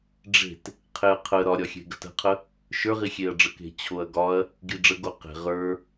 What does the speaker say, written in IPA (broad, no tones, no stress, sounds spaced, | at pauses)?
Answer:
ɖ͡ʐ e̤ t | qʰ e ɐ̯ qʰ ə ɾ ɒ ɾʲ ɒ xʲ e̤ ɡ ə̤ t ə̤ qʰ ə | ʃ ə˞ ʁ i xʲ e ɐ̯ ɖ͡ʐ ə k e̤ t͡ɕʰ o ɐ̯ ɡ ɒ ɐ̯ | ɡ i ɖ͡ʐ ə ɡ o q e̤ ʁ ə˞